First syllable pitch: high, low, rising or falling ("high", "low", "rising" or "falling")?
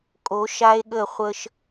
rising